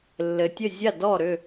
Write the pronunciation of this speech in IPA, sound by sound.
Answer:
lː ɘ˩ tʲ ə˧˩ zʲ a˧˩ d ɔ˧˩ ɾ ʏ˧˩

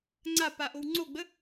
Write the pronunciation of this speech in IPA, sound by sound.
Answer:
ŋ͡ǀ a p a ʔ o w ŋ͡ǀ o ɡ͡b ə

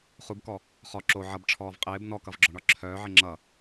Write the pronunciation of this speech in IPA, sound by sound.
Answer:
χ u b k ɔ | χ ɔ ǁ o ʕ ʌ b ʈ͡ʂʰ ɔː v qʼ ɪː b n ɔ k ʌ v ɡ͡ǁ ɔ ɳ ɒ ǁʰ œː ʕ ɪ ŋ͡ǁ ʌ

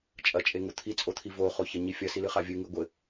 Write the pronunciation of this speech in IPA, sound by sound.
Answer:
t͡ʃʼ ɐ t͡ʃʼ e ŋ u t̪ʰ i t͡sʼ o t̪ʰ i v o χ o ç ɐ ɲ i fʲ ɐ s i l ɨ χ a vʲ ɨ ŋ ɨ ɡʷ ɘ

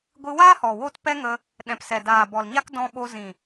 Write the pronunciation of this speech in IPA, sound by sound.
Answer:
ɡʷ ɨ˧ w aː˦ h ɔ˨ w o˦ t p ɛ˦ ŋ ə˧ | ɗ ɛ̃˨ p s ɛ˨ d aː˨ b ɔ˨ l ɲ a˦ k d ɔ̃˧ ɓ o˧ z ĩ˨

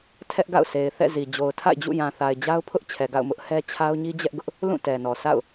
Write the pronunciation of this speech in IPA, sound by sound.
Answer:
tʰ ɛ˦ ʔ ɡ a̰˦˨ ʊ̯ s e˨ ɪ̯ θ ɛ̰˦˨ z i˨ d͡ʑ o˨ ʊ̯ tʰ a̰˦˨ ɪ̯ d͡ʑ ṵ˦˨ j ã˨ θ a˨ ɪ̯ d͡ʑ a˦ ʊ̯ pʰ ʊ˦ ʔ t͡ɕʰ ɛ˨ ɡ a̰˦˨ ʊ̯ m ʊ˦ ʔ h ɛ˦ t͡ɕʰ a˦ ʊ̯ ɲ i˦ d͡ʑ ɛ˦ ʔ ɡ ʊ˦ ʔ | l ũ˦˨ t ɛ˨ n ɔ˨ sʰ a̰˦˨ ʊ̯

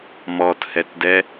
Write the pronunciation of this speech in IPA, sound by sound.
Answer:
m ɔ t h ɛ t d ɛ

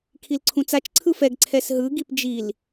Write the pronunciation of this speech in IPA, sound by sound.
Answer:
kʰ i l ǀʰ ũ t͡s a t͡ʃ ǀʰ ɯ f ɛ ɡ ǀʰ ɛ s ɦ ɯ ɡ i p d͡ʒ i l

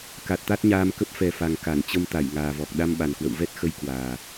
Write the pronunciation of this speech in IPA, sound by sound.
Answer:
k a˨˩ t̚ t̪ a˦˥ t̚ ɲ aː˧ m k ə˦˥ p̚ f ɛ˨˩ f a˨˩ ŋ k a˧˩ n t͡ɕ ə˧ m t̪ a˧˩ j ŋ aː˨˩ v ɔ˨˩ k̚ ɗ a˧ m ɓ a˨˩ n k w ə̰˧˨ w v ɛ˦˥ t̚ x ə˧ j k w aː˨˩

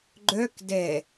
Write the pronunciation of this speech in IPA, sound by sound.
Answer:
ɡ͡ǃ œ k d ɛ

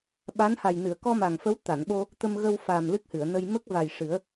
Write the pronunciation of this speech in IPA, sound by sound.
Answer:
ɓ a˧˥ n h a˨˩ j n ɨ˨˩˨ ə̯ k ɔ˧ m a˨˩ ŋ f ə˧˥ w t̪ a˨˩˨ n ɓ o˧ | t̪ ə˧ m ɣ ə˧ w f a˨˩ m l ɨ˦˥ k̚ h ɨ˨˩˨ ə̯ n ə˧ j m ə˦˥ k̚ v a˨˩ j ʂ ɨ˨˩˦ ə̯

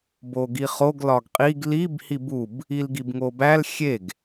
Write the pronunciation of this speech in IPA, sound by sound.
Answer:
b o ɡ i χ o ɡ l ɒ ɡ qʼ i ɡ l i b h i b u b | i l ɡ i b ŋ o b æ l xʲ e ɡ

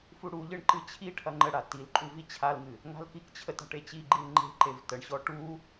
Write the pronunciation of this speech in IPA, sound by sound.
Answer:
f u ɽ u ʎ ɨ ɳ ǃ ɨ t͡ɕʰ i ʈʰ ɐ ŋ͡ǃ ə ɽ a t i l ǃʼ u v i t͡ɕʰ a l ŋ ɨ | ŋ a̤ l k i k t͡ɕʰ ə t a̤ ʈ e t͡ɕ i ɡ͡ǃ i l ŋ͡ǃ e̤ ǃ e v t ə ɳ ɕ ɔ ʈ u

